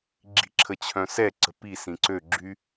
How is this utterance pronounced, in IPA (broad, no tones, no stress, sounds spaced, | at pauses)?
ɡ͡ǁ i̤ ǁʰ ə t͡ɕʰ œ̃ s ɛ ǀ ə̤ p i s ĩ ǀ ø ɡ͡ǁ y